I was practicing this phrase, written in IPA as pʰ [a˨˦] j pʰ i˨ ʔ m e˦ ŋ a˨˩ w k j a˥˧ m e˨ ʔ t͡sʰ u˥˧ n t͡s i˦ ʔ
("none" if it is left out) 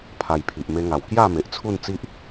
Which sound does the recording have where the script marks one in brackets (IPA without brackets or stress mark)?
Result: a˧